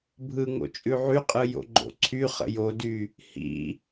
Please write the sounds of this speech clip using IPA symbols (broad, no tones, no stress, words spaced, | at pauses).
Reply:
bʱɯŋo̰ t͡ʃʼʉʕyqʼɯ jo̰ɡ͡ǃo̰ǀʰyχə̰ jody | hḭ